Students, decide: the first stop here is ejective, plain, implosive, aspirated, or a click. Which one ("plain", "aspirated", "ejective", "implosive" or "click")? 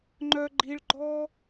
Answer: click